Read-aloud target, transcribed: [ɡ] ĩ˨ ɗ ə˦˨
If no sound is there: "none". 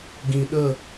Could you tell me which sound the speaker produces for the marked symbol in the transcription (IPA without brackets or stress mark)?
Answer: ɡ